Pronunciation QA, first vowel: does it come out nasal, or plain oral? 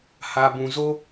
oral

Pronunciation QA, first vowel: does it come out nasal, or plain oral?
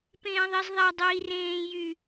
nasal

